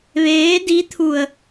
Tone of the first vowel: rising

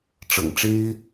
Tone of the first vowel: low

